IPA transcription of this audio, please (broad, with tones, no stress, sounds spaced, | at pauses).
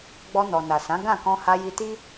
ɡ͡b ɔ˧ n ɔ˨ n a˨ s ã˨˦ ɡ ã˦˨ k ɔ̃˧ h a˧ j i˧ t i˦